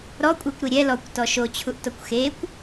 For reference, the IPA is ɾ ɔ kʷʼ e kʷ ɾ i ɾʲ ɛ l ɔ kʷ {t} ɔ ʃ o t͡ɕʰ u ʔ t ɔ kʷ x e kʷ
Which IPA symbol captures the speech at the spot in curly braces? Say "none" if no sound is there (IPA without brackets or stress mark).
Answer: t